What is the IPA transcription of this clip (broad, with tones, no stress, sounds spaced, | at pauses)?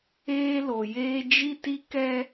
eː˦ l o˨ j eː˦ d͡ʒ i˦ t i˦ k ɛ˦